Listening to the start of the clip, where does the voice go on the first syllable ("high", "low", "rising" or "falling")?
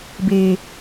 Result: high